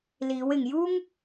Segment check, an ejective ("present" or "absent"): absent